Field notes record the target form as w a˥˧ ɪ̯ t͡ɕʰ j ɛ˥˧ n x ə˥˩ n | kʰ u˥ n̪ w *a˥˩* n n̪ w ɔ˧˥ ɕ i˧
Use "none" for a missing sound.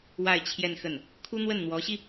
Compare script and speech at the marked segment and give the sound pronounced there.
ə˥˩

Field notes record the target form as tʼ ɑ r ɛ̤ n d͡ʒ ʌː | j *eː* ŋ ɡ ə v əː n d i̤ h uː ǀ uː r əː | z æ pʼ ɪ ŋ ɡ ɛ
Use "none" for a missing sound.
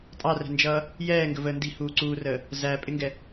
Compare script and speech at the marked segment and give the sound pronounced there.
ɛː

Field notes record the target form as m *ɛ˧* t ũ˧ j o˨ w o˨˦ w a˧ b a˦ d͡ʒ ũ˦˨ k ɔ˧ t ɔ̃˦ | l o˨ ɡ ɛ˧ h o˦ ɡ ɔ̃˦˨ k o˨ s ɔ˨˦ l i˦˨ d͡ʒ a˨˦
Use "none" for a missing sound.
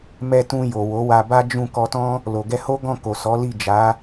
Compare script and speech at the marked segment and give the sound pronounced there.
ɛ˧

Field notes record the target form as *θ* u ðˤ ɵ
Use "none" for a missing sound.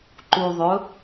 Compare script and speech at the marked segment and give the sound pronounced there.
ǃ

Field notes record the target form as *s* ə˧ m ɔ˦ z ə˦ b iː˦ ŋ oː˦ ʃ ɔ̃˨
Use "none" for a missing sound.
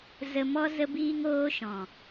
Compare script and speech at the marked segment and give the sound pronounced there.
z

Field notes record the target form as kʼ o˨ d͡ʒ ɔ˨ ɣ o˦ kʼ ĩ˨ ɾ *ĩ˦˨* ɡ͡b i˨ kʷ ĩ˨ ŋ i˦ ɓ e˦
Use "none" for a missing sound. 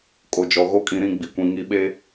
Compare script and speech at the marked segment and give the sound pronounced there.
ĩ˦˨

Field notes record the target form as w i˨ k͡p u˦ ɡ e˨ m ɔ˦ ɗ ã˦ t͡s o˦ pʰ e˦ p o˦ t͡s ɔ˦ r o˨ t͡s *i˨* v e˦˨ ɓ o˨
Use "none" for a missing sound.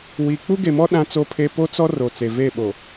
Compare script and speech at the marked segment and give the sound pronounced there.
e˨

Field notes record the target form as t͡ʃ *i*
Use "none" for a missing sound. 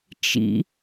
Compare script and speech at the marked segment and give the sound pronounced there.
ḭ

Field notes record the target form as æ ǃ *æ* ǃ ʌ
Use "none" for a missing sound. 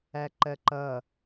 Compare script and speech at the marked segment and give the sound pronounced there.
ɜ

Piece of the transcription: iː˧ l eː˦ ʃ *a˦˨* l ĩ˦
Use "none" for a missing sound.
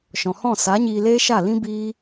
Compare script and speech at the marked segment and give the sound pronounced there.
a˦˨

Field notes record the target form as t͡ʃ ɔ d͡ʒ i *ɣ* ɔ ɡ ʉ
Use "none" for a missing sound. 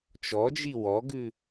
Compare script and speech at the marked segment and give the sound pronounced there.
w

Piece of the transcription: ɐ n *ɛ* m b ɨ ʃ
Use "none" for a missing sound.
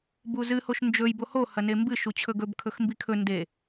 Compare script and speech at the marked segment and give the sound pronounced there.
e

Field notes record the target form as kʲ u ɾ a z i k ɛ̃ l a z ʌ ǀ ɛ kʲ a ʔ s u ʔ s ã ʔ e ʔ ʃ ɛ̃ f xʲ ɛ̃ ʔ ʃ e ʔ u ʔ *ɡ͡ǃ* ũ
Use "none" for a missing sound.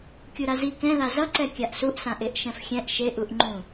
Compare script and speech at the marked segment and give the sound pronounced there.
ŋ͡ǃ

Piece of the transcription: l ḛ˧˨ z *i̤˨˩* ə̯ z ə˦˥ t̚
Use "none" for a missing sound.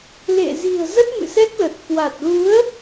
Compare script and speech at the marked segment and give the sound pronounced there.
i̤˨˩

